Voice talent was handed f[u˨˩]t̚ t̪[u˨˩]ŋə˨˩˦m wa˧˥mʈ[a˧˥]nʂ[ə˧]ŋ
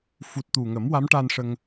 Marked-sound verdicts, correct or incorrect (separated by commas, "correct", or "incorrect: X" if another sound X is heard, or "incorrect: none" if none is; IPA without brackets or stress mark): correct, correct, incorrect: a˧, correct